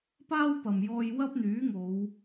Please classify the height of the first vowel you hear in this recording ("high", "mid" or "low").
low